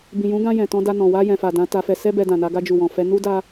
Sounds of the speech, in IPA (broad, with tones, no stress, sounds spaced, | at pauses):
b ĩ˨ j ũ˨˦ ɡ ã˧ j ɛ̃˨ t ɔ̃˧ d a˧ n ɔ̃˨ w a˧ j ɛ̃˨ f a˨ d ã˨˦ t a˧ f ɛ˧ s ɛ˦ b ɛ˧ d ã˨ n a˧ ɡ a˧ d͡ʒ u˨ w ɔ̃˨ f ɛ˧ n u˦ d a˦